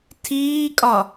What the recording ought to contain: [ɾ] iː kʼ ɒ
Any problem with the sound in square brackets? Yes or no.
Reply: yes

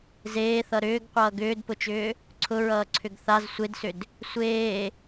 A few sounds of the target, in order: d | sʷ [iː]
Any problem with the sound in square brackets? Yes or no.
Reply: yes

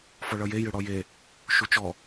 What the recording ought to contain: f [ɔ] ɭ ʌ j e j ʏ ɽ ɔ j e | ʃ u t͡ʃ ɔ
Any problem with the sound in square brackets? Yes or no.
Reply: no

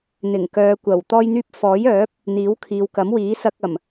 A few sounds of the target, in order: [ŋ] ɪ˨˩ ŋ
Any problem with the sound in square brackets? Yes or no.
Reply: yes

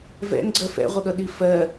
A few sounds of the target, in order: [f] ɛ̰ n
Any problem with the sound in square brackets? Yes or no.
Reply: yes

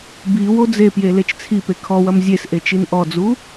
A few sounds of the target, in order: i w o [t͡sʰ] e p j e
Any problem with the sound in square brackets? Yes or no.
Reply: yes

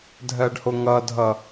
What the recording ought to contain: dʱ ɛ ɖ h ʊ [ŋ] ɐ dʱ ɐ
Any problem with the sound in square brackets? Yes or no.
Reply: no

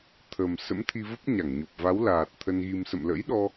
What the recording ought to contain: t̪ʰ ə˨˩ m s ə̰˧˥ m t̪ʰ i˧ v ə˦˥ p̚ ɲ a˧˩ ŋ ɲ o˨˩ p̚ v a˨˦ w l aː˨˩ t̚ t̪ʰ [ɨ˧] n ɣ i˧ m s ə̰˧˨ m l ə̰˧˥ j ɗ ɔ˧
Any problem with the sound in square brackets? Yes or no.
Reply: yes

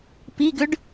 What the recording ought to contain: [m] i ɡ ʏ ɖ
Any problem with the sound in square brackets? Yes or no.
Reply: yes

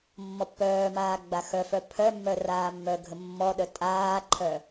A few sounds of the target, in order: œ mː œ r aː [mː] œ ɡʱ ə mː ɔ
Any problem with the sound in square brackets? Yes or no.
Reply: no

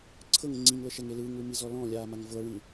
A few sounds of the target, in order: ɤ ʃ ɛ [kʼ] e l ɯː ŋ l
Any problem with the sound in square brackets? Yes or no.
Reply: yes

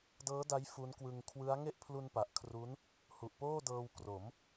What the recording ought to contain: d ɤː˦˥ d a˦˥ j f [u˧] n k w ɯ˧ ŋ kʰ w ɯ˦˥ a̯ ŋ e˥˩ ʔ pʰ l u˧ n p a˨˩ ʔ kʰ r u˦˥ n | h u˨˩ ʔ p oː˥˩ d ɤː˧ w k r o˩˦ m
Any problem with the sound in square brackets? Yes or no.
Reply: yes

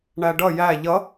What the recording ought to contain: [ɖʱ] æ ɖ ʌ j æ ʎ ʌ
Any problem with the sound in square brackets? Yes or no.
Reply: yes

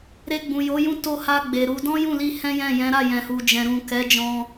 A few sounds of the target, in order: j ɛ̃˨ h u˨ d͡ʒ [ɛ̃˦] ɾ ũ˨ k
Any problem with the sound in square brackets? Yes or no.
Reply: yes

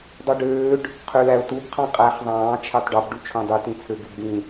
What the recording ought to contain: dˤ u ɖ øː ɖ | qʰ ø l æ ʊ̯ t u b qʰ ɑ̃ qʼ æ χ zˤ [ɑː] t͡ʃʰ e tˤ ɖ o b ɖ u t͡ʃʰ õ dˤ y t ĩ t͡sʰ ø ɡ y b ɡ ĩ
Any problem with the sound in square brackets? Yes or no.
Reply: yes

